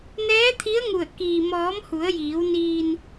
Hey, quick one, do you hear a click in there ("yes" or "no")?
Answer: no